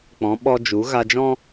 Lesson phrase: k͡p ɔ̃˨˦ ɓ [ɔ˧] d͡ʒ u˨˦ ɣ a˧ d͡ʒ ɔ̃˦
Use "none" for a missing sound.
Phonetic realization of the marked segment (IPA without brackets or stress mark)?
ɔ˧